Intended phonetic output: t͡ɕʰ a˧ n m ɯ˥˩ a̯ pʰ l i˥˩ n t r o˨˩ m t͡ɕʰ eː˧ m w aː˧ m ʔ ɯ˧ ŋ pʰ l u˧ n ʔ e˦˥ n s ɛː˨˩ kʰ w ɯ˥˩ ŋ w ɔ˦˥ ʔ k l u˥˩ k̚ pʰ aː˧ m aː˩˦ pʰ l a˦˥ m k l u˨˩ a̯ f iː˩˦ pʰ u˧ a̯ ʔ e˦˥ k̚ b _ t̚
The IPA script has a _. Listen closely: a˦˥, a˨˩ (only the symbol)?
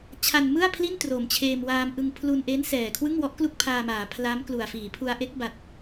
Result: a˨˩